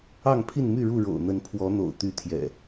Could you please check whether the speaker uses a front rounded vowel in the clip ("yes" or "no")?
yes